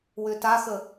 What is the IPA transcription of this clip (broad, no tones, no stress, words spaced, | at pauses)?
wʏtaxə